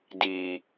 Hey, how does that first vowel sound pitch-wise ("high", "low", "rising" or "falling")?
high